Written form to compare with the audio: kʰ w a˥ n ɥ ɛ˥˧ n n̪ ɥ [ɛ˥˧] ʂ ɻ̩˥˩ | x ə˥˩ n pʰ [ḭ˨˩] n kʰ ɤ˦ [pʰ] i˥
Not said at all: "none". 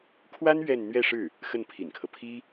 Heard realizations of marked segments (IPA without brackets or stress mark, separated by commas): ɛ˥˧, ḭ˨˩, pʰ